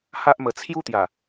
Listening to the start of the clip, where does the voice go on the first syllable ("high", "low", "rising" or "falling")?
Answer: high